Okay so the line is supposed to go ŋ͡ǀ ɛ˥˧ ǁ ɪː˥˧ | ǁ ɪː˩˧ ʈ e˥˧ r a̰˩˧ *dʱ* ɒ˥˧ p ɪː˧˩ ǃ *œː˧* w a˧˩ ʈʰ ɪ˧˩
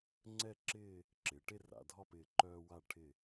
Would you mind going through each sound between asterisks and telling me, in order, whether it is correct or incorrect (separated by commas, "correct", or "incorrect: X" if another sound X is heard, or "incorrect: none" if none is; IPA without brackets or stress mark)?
correct, correct